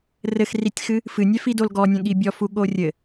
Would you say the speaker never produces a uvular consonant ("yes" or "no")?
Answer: yes